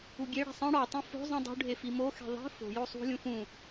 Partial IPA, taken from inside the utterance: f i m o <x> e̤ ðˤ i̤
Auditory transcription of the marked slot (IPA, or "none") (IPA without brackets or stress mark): x